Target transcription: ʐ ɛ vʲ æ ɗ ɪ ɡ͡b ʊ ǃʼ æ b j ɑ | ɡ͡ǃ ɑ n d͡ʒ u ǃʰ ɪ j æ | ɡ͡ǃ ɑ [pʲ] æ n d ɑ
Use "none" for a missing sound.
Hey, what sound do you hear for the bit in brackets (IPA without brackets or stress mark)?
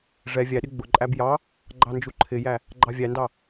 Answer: vʲ